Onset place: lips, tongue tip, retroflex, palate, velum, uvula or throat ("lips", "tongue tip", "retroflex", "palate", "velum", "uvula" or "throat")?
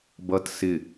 lips